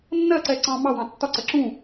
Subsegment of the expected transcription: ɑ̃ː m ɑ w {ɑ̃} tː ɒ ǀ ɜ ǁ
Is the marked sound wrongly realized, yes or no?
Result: no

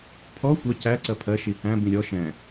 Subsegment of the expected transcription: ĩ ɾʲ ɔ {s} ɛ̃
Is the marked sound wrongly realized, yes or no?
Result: yes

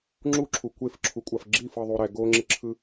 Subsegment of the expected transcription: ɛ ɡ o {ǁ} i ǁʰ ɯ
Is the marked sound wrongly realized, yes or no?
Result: yes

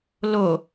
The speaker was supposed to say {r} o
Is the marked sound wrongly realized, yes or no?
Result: yes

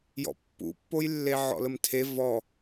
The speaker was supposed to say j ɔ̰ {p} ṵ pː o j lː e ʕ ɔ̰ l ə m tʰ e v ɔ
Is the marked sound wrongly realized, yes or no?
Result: yes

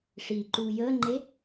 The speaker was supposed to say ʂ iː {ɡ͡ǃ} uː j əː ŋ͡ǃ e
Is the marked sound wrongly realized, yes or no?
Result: yes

